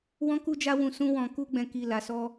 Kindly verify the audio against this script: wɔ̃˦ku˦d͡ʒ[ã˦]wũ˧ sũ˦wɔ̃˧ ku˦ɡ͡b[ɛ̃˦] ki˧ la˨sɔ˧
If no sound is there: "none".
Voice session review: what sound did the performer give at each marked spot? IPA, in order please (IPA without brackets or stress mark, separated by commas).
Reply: a˦, ɛ̃˧